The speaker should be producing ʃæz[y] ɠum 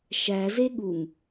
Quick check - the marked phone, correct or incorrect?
incorrect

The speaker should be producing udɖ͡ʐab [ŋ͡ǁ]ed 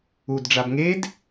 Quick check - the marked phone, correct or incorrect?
incorrect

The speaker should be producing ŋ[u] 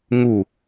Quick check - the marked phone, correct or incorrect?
correct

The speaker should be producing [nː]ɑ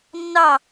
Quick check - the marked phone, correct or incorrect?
correct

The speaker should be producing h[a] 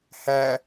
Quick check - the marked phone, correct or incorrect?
incorrect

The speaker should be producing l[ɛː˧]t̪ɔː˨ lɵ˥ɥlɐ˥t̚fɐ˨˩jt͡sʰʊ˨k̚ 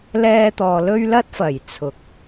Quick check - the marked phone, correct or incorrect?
correct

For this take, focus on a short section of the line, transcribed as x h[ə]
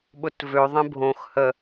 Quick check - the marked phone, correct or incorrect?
correct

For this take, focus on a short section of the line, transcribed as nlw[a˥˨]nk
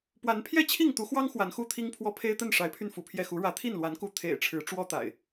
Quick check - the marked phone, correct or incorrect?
incorrect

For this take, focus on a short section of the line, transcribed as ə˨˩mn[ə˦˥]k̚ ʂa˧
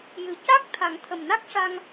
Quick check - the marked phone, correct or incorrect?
incorrect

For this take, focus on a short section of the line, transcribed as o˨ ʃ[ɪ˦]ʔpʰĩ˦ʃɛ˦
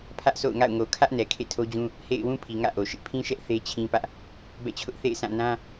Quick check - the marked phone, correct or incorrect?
correct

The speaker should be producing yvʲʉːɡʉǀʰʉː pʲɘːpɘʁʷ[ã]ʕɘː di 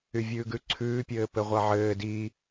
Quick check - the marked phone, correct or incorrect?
incorrect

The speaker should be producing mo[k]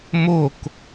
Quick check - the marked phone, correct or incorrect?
correct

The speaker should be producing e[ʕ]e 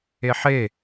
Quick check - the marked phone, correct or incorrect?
incorrect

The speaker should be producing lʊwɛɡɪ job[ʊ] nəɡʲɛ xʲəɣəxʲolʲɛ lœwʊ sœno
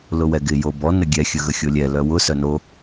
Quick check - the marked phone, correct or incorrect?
incorrect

